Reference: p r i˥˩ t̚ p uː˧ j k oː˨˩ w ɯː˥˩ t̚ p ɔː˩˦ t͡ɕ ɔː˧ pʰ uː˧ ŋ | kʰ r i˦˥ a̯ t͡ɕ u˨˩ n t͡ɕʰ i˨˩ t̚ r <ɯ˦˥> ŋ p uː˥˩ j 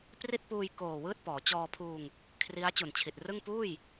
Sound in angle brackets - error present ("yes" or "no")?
yes